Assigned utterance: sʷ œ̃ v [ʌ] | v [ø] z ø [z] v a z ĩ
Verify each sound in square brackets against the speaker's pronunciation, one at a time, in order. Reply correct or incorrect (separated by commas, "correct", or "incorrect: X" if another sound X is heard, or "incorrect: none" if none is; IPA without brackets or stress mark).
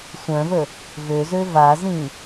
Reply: incorrect: ə, correct, incorrect: none